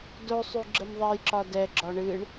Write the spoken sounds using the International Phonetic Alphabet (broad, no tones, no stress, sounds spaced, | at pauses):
d o sˤ y ɡ͡ǁ ə m ðˤ ɛ j ǁ ɒ d ɛ ɡ͡ǁ ɒ ɳ ɨ ɳ